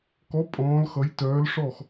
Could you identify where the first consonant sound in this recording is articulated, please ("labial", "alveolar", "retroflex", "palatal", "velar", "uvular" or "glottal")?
velar